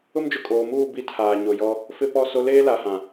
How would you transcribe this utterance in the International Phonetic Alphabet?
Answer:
ʊ˦md͡ʒʊ˨kʼoː˨muː˦˨ bi˦tʰaː˨ ɲo˨jɔ˦ | fɪ˦pɔ˦˨ so˦ leː˦la˨hã˨

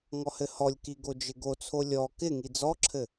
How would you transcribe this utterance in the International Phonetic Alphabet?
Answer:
ŋɔhɘhɔlʲki ɡod͡ʒɪɡot͡sʰo lʲɔ kɪŋi d͡zɔǁʰɘ

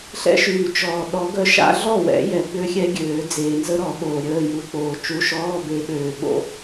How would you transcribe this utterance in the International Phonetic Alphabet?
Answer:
ɬɛ̰˥ʃyː˨t͡ʃɔː˨ ɗɔ˨˦ ɡœ˥ʃa̰˥ ɮɔ˥˩wɛ̰˨˩˦ jɛ˨˩˦ɡ͡bø˥xʲɛ˥ɡʲøː˨˩˦ d͡zeː˨nzə˥ɾɔ˨˩˦ ɓoː˨ɾʲəː˧˥˧ju˨˦ k͡poː˨t͡ʃu˧˥˧ ʃɔː˧˥˧be˨˦ɓøː˨ ɓo̰˥

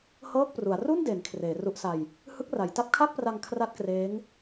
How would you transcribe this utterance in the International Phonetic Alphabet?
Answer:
hɤː˥˩k̚pru˩˦a̯ ru˥˩nde˩˦n kʰreː˩˦ru˦˥ʔsa˧j | hɯ˦˥k̚ra˩˦j ta˦˥p̚kʰa˥˩k̚pra˧ŋ kʰra˥˩t̚kreː˦˥ŋ

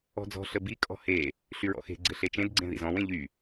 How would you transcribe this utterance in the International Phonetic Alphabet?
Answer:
ɔ̤d͡zɔ̤ ɬəbi kʼɔ̤he | ɬyɹɔ̰xe̤ ɡ͡ǀɘɬet͡ʃẽd ɡ͡ǀẽðḭzɔ̃w ẽʎy

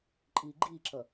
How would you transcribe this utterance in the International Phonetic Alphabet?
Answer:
ǃʼiːɡ͡ǃiːǁʌ

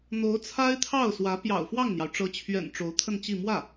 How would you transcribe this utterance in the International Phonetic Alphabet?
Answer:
n̪o˧˥ʊ̯t͡sʰa˥ɪ̯t̪ʰɑ˥˩ʊ̯ swä˧˥ pjɑ̰˨˩ʊ̯ fwɑ˥˩ŋn̪jɑ˩ʊ̯ ʈ͡ʂɤ˧˥t͡ɕʰɥɛ̰˨˩n ʈ͡ʂo˧˥ʊ̯t̪ʰə˥˧nt͡ɕi˥˧ mwä˥˩

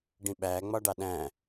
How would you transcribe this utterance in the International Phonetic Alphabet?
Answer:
ɖĩɓæ ŋ͡mɒɖɑɗæ̃

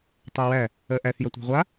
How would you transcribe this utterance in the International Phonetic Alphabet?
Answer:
tˤæwæ | ɜʔæθ jʌtʷæ̤ʁʷa

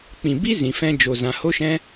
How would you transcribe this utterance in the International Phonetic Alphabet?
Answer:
k͡pĩ˨bi˦ zĩ˨fɛ̃˧d͡ʒo˨ zã˨ho˦ʃɛ̃˦

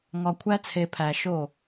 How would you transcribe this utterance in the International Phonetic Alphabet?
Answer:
ŋɒ˨ kʷʰæ˦t͡sʰe˨pʰæ˨ ʃo˨

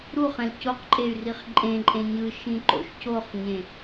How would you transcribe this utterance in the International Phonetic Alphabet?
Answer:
ɾuχɛ̃l coqǃʼey̯riχ ǃʼẽǃʼẽ ɲɯʃĩǃo̰ʃ coχɲẽ

